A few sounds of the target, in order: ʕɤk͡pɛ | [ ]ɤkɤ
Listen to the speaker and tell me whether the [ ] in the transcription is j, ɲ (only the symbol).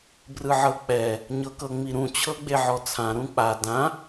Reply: ɲ